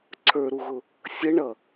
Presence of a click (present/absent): present